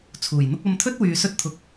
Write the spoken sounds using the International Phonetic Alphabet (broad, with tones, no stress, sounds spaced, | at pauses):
t͡sʰ uː˨˩ j n̪ ʊ˥ k̚ ɐ˧ m t̪ʰ ɵ˥ t̚ w yː˨ s ɵ˥ t̚ t̪ʰ ʊ˧ k̚